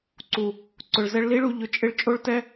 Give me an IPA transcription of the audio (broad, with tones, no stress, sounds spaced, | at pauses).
ǀ u˨ | ǀ ʊ˨ ɭ z ɛ˧ ɭ l i˦ ɭ u˧ ʎ ʊ˧ t͡ʃʼ ɪ˦ ɭ t͡ʃʼ o˦ ɭ t ɛ˦